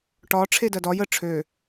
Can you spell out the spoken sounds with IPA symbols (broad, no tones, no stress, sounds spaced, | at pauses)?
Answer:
ʈ ɒ ʈ͡ʂʰ e d ɜ d ɒ j ə ʈ͡ʂʰ ø